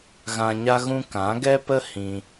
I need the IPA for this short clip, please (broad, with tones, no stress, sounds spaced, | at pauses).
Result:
ɣ ã˧ ɲ a˦ ɣ ũ˦ k ã˨˦ ɡ ɛ˦ p ə˦ h ĩ˧